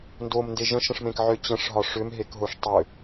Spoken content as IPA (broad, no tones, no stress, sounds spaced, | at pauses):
n d o m n d e ʒ ə̃ ʃ ə̃ ʂ m ẽ k ʕ ʏ t͡ɕ ə̃ ʂ ɦ ɒ ʂ ʏ m ɦ e k ɦ o ʂ tˤ ʏ